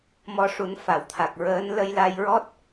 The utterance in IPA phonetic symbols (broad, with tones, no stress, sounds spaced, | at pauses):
m ɔ˧ ʂ u˨˩˦ n f a˨˩˦ w t̪ʰ a˨˩ k̚ ɹ əː˧˥ n l ə˧ j l a˧ j ɹ ɔ˦˥ t̚